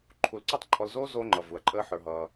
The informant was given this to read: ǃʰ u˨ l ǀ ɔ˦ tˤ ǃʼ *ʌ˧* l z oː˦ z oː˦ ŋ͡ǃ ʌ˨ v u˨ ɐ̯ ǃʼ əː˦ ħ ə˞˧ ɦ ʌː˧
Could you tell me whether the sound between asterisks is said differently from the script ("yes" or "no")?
yes